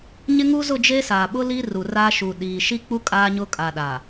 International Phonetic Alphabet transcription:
ɲ ɪ˦ ŋ u˦ z ʊ˦˨ d͡ʒ e˦ s aː˨ ɓ ʊ˦ l i˦ r u˨ r aː˦ ʃ u˨ ɗ iː˨ ʃ i˦ k͡p u˦ kʼ aː˦ ɲ ʊ˦ kʼ a˨ ɗ a˨

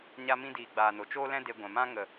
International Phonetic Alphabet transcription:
ɲ a˦ m ĩ˦ d iː˨ ɡ͡b aː˨ n o˨ t͡ʃ oː˦ l ɛ̃˦ d e˧ ɡʷ ɛ̃˨ m ã˦ ŋ ə˨

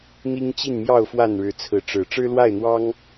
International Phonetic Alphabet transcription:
n̪ i˦ ŋ t͡ɕ i˥˨ n m j ɑ˥˨ ʊ̯ f w a˥˨ n ɻ ɻ̩˨˦ t͡sʰ ɹ̩˨˦ ʈ͡ʂ ɻ̩˨˩ ʈ͡ʂ ɻ̩˦ l w a˥˨ ɪ̯ n̪ w ɑ˦ ŋ

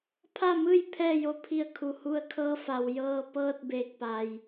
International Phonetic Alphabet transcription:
pʰ a˥˨ m ɯː˥˨ j pʰ ɛː˥˨ j o˧˥ pʰ i˧˩ ə̯ kʰ u˩ h u˧ ə̯ kʰ ɤː˧˥ f a˩ w j ɤː˧ p ɤː˥˨ t̚ b eː˧˩ k̚ p a˩ j

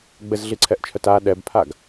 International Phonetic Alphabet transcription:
ɡ͡b ɘ z ɮ i ǀʰ ɛ ʔ t͡ʃʰ œ t a ɗ ɛ b pʰ a ɡ

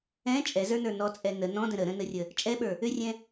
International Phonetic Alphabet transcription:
ɛ̃ t͡ʃʼ ɛ z ə˞ n ə˞ n ɔ t͡sʼ ɛ n ə n ɔ̃ d ə̃ ɾ ə ɾ ə̃ n ə rʲ ə | t͡ʃʼ ɛ ɓ ə˞ | ʏ rʲ ɛ̃

